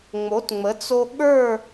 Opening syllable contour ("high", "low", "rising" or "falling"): rising